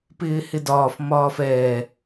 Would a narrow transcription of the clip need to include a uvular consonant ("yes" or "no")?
no